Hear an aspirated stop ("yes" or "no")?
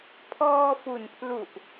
yes